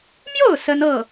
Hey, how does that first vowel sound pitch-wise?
falling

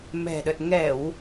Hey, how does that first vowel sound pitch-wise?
low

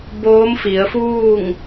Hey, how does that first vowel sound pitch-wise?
rising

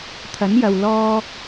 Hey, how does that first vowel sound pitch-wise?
rising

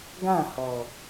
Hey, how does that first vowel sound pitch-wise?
falling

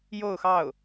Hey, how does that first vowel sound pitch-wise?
falling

